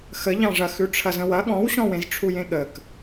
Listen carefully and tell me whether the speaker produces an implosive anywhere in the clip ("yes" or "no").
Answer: yes